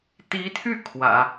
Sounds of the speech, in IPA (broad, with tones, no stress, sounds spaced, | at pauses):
t̪ i˧˥ t̪ʰ y˥˩ kʰ w ä̰˨˩˦